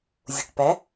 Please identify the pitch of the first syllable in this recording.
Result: low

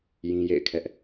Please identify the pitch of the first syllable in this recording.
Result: high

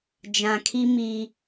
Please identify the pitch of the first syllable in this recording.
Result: low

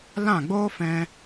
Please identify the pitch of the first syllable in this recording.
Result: falling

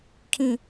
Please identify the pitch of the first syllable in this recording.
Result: low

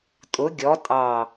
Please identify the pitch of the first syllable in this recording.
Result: rising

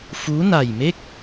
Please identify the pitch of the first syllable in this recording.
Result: rising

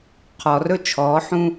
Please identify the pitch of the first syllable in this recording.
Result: low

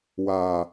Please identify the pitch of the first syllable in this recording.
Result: low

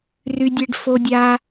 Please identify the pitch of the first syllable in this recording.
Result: high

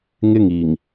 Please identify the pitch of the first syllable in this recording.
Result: high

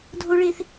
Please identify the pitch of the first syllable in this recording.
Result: high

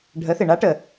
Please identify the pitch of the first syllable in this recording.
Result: rising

